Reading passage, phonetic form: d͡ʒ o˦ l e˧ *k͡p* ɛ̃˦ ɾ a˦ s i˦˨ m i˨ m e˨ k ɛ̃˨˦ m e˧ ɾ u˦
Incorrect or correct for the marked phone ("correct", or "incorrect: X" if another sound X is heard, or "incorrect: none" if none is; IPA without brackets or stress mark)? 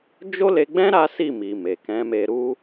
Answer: incorrect: ɡ͡b